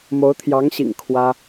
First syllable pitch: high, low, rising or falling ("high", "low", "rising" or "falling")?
rising